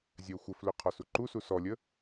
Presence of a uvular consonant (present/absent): present